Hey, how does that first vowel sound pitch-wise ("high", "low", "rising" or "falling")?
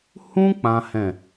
high